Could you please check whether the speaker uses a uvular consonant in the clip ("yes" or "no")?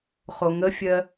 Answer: yes